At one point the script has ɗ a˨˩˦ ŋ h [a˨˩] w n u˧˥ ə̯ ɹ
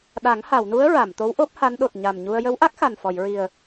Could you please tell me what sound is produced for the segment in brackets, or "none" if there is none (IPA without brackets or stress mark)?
a˨˩˨